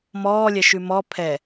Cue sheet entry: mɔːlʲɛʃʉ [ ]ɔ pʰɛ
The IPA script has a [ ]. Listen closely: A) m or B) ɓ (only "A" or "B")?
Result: A